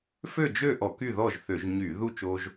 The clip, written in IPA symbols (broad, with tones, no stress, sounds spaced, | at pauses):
f ø˥˨ d͡ʒ ø˥˨ ʔ ɔ˧˩˧ k y˥˨ ð ɔ˥˨ ʒ θ ø˧˩˧ ʒ ɲ y˧˩˧ ð u˥˨ t͡ʃ o˦ ʒ